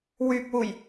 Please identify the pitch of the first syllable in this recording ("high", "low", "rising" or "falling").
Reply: low